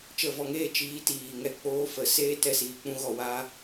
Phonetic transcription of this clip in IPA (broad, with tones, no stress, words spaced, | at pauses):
t͡ʃə˦˨vɔ˧ŋeː˦ t͡ʃiː˨˦tiː˨ŋɛ˧ k͡poː˦ fə˨˦seː˦ tɛ˧siː˨k͡pũ˦ɣɔ˧ waː˦